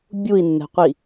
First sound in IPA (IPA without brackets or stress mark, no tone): bʲ